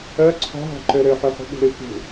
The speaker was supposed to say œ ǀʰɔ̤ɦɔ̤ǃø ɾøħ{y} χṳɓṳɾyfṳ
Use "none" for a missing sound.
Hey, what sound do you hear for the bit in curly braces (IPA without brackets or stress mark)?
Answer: ø